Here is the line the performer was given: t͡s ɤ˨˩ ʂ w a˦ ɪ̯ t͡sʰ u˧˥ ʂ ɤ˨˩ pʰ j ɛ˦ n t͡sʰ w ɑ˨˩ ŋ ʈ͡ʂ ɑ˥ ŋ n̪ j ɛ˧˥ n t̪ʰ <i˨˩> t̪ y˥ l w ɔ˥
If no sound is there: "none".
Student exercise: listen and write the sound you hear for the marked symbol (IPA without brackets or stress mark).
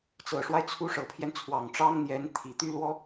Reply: i˨˩